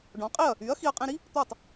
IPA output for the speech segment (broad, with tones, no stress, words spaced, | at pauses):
ɖɔ̃˩˥qʼi˥˩ɐ̯ | y˩˥ɐ̯ xi˧ɐ̯qʼĩ˧ɾi˥ | t̪o˥˩tˤ